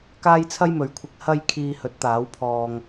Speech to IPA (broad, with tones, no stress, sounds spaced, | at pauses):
k aː˥ j t͡sʰ ɐ˥ j m ɵ˨˧ ɥ kʷʰ ɪ˧ k̚ h ɐ˧ j kʰ iː˧ h ɵ˨˥ t̚ t̪ aː˨˥ w pʰ ɔː˧ ŋ